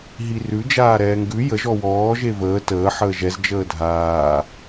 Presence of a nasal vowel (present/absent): absent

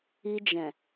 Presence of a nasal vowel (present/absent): present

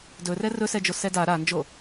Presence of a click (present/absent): absent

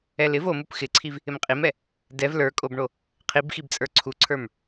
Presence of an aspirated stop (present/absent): present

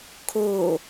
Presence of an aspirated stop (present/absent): present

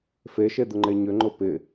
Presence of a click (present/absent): present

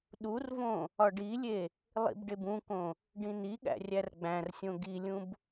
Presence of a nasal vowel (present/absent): present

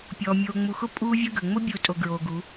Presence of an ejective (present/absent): present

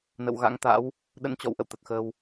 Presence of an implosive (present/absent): present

